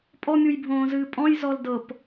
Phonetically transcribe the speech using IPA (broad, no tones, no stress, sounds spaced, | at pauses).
pʼ ɔ mʲ u j bʱ õː z ɨː pʼ ɔ̃ j z ɔ l d ɤ p